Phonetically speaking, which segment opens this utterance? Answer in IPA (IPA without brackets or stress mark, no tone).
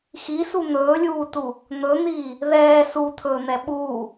x